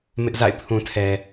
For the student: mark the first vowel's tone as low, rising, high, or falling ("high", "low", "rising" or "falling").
high